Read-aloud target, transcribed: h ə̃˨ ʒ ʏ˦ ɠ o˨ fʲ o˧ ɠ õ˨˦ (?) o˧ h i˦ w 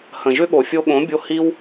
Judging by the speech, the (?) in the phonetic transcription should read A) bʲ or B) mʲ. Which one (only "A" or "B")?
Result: A